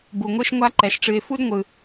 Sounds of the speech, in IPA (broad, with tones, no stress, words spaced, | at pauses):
bu˩ŋʷɨ˦ʃ ŋʷa˦ǃɛ˩ʃʈ͡ʂɨ˨ɪ̯ fu˥dŋʷɯ˩